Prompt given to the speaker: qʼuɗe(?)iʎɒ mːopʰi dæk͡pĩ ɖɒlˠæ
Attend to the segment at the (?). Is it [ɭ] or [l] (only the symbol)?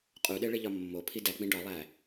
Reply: ɭ